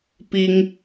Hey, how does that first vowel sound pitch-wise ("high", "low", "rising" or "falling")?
high